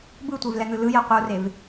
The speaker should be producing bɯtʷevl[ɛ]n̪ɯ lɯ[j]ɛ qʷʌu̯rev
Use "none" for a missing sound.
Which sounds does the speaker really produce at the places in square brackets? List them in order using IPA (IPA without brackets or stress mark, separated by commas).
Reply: ɛ, j